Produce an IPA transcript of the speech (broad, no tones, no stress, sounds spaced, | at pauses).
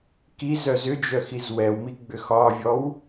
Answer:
k i z œ z ʏ d͡ʒ œ x i z w ɛ w m i ɡ͡b ʏ x ɒ vʲ ɔ w